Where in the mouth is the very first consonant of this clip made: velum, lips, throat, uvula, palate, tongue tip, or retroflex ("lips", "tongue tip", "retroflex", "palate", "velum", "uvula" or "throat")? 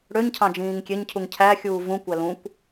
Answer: retroflex